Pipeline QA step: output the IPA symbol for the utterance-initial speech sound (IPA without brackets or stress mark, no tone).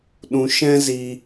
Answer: ɗ